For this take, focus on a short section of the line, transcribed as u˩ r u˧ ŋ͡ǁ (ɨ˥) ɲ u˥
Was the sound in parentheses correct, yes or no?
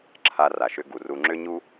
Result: no